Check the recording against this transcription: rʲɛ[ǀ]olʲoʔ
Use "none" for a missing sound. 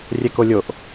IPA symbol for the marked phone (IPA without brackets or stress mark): k